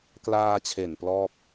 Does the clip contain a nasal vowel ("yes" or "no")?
no